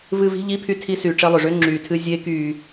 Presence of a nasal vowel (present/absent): absent